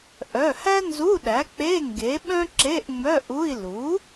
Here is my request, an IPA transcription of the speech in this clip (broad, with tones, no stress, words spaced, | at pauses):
ʔœ˩˧˩hæ˥nzu˧˥˧ɗæ˩˥ k͡pe˧˥˧ŋɡe˩˥ ɓœ̃˥ǁe˧˥˧ʔŋ͡mœ˧˥˧ʔu˧˥˧i̯ lu˩˥